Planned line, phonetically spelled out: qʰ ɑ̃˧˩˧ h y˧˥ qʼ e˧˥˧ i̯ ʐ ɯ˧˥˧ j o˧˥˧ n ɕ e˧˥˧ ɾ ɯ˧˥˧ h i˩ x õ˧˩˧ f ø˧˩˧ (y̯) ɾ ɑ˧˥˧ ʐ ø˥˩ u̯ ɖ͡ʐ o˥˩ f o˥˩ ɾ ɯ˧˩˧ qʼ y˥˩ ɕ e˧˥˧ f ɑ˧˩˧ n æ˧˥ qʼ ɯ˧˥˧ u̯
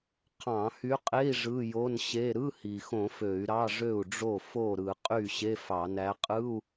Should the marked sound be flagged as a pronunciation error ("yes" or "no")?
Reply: no